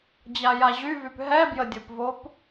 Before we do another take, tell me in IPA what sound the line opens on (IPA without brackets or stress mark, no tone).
d͡ʑ